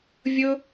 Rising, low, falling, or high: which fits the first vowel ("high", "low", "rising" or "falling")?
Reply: high